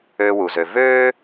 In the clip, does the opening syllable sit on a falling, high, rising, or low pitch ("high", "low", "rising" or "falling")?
low